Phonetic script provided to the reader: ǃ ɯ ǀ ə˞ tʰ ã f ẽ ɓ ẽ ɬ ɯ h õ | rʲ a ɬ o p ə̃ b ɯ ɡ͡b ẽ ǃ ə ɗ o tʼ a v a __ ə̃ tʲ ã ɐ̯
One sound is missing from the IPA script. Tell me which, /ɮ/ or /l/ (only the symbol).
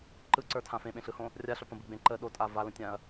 l